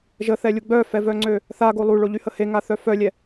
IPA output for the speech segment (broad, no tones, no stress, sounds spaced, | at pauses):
ʒ ə θ ɛ lʲ u ɡ͡b œ f ɛ v œ ŋ͡ǀ ø | θ a ɡ o lˠ u ɭ o ʎ y h ə h e ŋ a θ œ f œ lʲ ɛ